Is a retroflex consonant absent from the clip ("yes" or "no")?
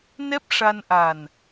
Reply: no